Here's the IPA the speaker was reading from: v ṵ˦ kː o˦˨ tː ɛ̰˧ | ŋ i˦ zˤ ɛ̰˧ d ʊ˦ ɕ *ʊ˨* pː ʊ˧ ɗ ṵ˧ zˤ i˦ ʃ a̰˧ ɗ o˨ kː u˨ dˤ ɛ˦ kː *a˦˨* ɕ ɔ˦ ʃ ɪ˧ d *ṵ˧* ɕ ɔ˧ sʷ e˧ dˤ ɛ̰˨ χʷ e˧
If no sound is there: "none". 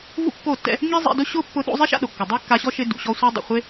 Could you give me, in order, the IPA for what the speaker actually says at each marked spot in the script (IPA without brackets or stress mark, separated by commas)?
ʊ˦, a˧, ṵ˨